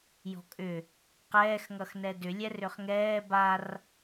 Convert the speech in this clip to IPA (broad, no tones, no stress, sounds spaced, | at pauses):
j ɔ̤ kʼ ʏ | q ɛː x ŋ ʌ x n ɛ d ʏ lʲ ɛ r ʏ χ ŋ ɛː b a r